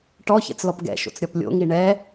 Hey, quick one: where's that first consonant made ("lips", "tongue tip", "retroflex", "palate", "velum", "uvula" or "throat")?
retroflex